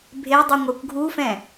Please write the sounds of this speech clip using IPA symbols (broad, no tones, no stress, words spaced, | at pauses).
bʱedˤu ŋʷœkʷɡʱufɛ̃